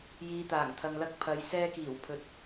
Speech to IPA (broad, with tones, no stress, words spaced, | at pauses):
jiː˨ t̪aː˨˩ŋ t̪ʰɐ˨ŋlɐ˧k̚ pʰɐ˨j sɛː˧kiː˨˩w pʰɵ˨t̚